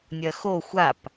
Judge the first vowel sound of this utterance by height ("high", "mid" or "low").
low